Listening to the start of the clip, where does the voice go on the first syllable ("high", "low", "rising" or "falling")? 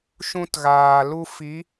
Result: high